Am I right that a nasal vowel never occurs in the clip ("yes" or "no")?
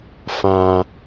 no